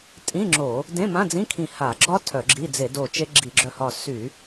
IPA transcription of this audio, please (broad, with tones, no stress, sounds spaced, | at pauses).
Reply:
tʼ ĩ˧˥˧ ŋ͡ǁ o˧˩˧ | d ẽ˧˥˧ m ã˧˥˧ d͡z ĩ˧˥˧ kʰ ĩ˧˩ h a˧˩˧ ɡ͡ǁ ɒ˦˥ tʰ œ˧˩˧ ɡ͡ǁ i˧˥˧ d͡z e˧˩˧ d o˧˩ t͡ʃ e˦˥ ɡ͡ǁ i˧˩˧ ɡ͡ǁ œ˧˩ h ɒ˧˩ s y˧˩˧